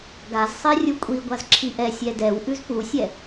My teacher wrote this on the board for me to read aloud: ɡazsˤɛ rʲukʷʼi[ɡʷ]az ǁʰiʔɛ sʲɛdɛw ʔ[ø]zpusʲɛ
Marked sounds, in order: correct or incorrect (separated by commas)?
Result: correct, incorrect